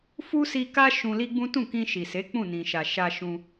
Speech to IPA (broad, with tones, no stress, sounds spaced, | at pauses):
f u˦ s i˧ k a˦ ʃ ũ˧ l i˦ ɡ͡b ũ˦ t ũ˦˨ k ĩ˧ ʃ i˨ s e˨˦ k͡p ũ˦˨ n ĩ˨ ʃ a˨ ʃ a˧ ʃ ũ˧